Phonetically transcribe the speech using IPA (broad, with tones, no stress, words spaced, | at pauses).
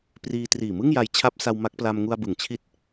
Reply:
priː˧triː˨˩ mɯ˥˩ŋja˧jt͡ɕʰa˦˥p̚sa˧w ma˦˥k̚pla˧m ŋu˧a̯bɯ˩˦ŋt͡ɕʰi˦˥t̚